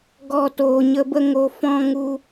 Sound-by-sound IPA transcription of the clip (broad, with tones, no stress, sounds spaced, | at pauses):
ɡ ɔ˧ t oː˨ ɲ ə˧ b ə˧ ŋ o˨ f ɔ̃˧ ŋ u˧